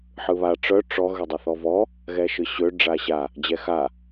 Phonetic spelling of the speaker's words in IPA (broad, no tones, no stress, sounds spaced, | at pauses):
ħ ɯ β a ʈ͡ʂ œ ʈ͡ʂ ɔ ɣ ø dˤ ɯ θ ɔ v ɔ | ɣ ɛ ʃ ɯ ɕ ø ɖ͡ʐ a ɕ a | d͡ʑ ɛ x a